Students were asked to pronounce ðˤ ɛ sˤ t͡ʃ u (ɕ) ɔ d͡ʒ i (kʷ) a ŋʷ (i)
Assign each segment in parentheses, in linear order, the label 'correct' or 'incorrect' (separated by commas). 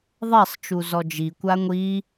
incorrect, correct, correct